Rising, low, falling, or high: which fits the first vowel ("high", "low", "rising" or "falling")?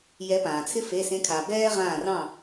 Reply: rising